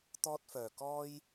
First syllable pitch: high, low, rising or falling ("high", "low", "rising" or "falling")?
high